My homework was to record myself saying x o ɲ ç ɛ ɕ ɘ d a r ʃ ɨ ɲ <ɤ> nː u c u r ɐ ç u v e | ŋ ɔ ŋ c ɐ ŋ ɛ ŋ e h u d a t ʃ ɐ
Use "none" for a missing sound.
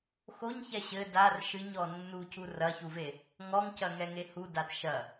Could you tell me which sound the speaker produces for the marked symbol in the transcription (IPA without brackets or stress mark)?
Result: ɔ